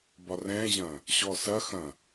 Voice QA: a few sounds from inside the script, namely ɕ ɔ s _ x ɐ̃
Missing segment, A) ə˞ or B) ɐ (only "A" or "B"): B